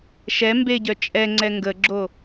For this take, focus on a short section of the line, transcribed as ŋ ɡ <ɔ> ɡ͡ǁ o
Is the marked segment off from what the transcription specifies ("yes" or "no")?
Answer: yes